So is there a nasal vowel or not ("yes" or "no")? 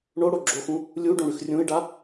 yes